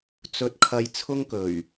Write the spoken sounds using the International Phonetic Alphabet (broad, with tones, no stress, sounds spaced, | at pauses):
t͡s ɵ˧ t̚ kʰ ɐ˧ j t͡sʰ ʊ˥ ŋ k ɵ˨˩ ɥ